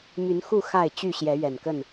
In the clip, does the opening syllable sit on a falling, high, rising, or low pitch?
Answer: rising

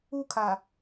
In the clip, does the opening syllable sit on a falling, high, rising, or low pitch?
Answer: high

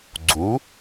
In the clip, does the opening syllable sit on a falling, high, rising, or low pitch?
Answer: rising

